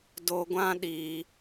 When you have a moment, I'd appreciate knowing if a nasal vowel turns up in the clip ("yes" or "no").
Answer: yes